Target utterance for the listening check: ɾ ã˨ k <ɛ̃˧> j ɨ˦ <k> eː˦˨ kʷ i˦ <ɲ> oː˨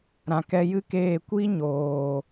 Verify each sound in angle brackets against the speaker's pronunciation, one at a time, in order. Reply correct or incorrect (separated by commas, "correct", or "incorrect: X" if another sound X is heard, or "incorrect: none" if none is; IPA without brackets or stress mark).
incorrect: ɛ˧, correct, correct